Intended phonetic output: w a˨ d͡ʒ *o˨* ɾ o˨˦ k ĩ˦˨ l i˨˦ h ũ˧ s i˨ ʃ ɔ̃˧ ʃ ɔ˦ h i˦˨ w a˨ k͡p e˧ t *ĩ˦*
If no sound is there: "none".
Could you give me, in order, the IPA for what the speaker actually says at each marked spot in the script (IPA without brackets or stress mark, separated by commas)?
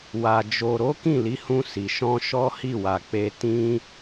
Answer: o˨, ĩ˦